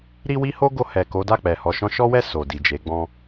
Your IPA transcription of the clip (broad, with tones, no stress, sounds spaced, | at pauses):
ɾ i˦ w i˦ h o˦ ɡ o˧ h ɛ˨ k o˨˦ d a˦˨ k͡p ɛ˨ h ɔ˨ ʃ ɔ̃˧ ʃ ɔ˦ w ɛ˦˨ s o˨ d i˨ d͡ʒ e˨˦ ɡ͡b ɔ̃˧